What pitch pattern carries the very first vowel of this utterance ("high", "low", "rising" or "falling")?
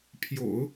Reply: low